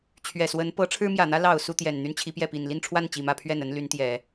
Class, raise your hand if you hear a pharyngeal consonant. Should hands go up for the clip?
no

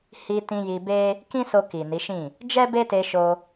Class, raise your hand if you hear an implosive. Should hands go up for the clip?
no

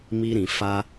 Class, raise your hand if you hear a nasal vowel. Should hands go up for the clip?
yes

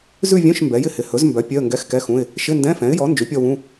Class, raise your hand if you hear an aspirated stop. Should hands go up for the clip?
no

